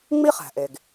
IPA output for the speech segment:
ŋ͡m i˥ χ æ̤˩ ʔ e˩ ɡ

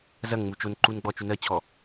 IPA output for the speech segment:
z ɐ ŋ ŋ͡m u t͡ʃ o n ǃ u n ɡ͡b ɔ t͡ʃ u n ɜ t͡ɕʰ ɔ

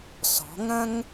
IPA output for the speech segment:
s ɔ̤˨˦ ŋ ɐ̃˦ ŋ

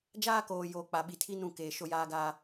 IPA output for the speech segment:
d͡ʒ aː˦ k oː˨ j oː˨ k͡p a˨ ɓ i˨ tʰ i˦ n ũ˦˨ k eː˨ ʃ o˦ j aː˦ ɡ aː˦

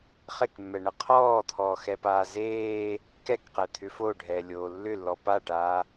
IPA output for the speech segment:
χ e k mː ɛ ɳ ə qʰ ɔː t̪ʰ ɔː x ɛ p aː z eː | k ɛ k q ɛ t̪ʰ ʏ f o ɖʱ ɛː lʲ oː lː ʏ lː ɔ p a ʈ aː

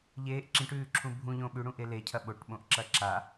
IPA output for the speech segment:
ʎ eː ʔ ǁ ĩ ʈ ʉː ǁʰ ũ bʱ ũ ʎ õ ɓ ʉ ɽ ũ ʔ e l e cʰ ɐ ɓ o ʈ ɓ õ ʔ ǁ ɐ ǁ a

